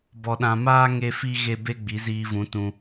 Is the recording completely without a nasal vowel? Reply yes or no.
no